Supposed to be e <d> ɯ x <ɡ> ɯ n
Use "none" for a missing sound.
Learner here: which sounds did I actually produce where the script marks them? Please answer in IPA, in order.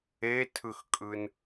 tʰ, kʼ

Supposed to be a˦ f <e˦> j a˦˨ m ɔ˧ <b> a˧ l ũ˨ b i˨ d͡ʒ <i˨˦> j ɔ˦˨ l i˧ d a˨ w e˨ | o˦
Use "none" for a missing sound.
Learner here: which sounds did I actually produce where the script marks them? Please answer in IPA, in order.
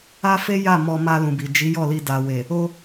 e˦, m, i˨˦

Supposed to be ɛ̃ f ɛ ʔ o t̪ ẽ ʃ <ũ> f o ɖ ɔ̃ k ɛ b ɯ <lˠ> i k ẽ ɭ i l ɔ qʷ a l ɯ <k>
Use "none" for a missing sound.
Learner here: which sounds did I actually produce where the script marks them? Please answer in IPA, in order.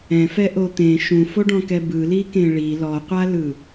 ũ, l, none

